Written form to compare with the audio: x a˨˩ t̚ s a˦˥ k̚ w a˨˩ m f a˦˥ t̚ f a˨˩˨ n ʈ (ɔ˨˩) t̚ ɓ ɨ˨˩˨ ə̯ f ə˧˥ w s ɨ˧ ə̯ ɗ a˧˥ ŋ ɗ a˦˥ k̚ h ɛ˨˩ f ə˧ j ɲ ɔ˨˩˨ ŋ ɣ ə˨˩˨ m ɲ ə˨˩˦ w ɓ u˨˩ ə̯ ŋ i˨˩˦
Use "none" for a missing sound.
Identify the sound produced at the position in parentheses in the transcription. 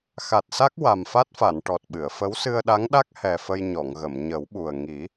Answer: ɔ˨˩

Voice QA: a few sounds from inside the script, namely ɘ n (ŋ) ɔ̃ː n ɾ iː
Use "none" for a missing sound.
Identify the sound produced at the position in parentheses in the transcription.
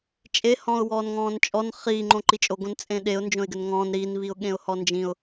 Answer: ŋ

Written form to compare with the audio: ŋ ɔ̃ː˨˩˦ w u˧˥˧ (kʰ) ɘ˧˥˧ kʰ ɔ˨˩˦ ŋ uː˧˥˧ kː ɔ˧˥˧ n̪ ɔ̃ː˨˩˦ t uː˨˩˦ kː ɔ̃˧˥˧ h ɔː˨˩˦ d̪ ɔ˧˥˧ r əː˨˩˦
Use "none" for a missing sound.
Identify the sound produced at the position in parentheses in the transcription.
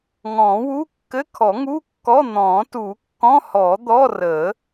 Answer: kː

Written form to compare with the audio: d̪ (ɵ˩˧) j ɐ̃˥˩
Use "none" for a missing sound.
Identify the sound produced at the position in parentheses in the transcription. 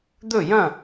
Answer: ɵ˥˩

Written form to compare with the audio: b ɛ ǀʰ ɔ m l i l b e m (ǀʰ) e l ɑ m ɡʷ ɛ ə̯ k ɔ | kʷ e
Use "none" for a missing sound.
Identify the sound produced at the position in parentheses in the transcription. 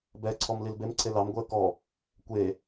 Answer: ǀʰ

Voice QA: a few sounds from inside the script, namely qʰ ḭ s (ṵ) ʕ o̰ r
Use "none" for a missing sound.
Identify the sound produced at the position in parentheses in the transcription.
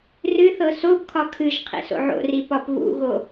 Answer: o̰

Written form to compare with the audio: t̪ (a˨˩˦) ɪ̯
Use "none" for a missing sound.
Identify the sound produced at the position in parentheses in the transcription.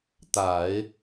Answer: a˨˩˦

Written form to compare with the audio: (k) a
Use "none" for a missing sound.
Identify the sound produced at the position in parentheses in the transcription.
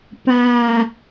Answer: p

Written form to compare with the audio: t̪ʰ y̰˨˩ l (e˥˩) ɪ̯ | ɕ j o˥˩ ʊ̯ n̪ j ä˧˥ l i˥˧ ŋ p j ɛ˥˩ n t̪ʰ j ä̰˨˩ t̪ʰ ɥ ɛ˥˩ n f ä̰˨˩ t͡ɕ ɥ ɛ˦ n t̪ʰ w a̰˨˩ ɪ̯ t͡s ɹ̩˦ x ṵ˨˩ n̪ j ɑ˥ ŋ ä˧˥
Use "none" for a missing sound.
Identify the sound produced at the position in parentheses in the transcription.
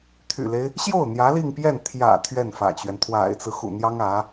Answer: e˦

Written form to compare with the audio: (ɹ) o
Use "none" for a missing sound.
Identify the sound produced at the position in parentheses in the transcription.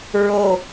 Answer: ɹ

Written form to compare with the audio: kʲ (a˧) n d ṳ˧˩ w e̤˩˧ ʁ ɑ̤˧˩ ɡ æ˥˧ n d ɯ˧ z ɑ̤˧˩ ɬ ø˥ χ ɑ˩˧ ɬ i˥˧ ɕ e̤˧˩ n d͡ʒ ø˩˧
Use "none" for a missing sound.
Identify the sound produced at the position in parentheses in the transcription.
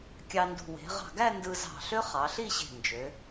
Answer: ɑ˧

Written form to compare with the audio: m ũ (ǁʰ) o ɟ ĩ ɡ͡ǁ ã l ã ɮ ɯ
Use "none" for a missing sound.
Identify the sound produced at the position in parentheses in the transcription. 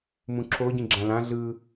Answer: ǁʰ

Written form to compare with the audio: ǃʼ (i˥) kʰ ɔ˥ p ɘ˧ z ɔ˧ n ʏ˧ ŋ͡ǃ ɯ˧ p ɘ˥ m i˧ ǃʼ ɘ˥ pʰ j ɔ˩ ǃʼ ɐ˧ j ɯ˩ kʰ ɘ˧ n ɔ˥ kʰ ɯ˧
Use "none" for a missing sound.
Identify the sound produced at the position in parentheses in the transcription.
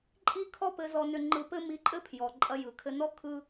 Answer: i˥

